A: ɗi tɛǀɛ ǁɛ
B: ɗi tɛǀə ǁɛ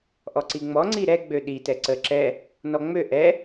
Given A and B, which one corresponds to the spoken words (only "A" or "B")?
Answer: B